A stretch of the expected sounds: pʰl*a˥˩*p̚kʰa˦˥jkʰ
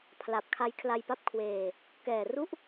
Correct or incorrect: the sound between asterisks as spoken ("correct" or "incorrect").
incorrect